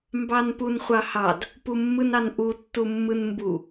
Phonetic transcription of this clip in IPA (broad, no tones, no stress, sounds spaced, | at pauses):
m b ɑ n p u n χʷ ɑ h ɑ d | p u mː ɯ n ɑ n ʔ u tː u mː ɯ n m b u